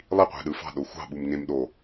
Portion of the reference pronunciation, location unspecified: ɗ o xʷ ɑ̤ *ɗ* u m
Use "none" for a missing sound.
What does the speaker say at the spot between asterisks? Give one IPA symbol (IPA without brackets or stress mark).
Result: ɓ